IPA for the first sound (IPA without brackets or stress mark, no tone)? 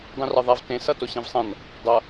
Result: dˤ